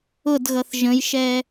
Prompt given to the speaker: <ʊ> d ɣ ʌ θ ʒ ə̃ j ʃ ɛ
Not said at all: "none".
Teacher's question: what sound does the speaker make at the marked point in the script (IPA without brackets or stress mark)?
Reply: ʊ